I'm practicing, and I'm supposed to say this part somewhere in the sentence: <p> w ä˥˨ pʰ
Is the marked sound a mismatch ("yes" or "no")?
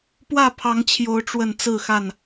no